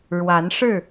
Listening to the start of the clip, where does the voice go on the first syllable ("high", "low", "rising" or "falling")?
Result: rising